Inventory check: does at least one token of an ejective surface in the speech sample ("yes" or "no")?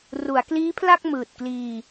no